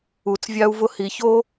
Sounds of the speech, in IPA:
u˨t͡svʲa˦u̯vʊ˦ hi˨ço˥

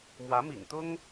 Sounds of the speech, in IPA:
mwä˧˥mḭ˨˩ŋt̪ʊ˥ŋ

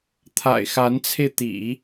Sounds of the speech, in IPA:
t̪ʰa̰˨˩ɪ̯xa˧˥nt͡sʰe˧ɪ̯t̪ḭ˨˩˦

